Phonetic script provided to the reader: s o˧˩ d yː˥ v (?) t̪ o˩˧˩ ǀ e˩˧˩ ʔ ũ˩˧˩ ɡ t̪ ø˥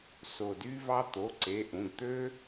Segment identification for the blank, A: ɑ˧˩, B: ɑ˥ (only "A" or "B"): B